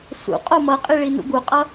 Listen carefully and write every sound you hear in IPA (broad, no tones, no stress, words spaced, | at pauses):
sṵ qʼomʌqʼi ɭinṵɡuqʼʌ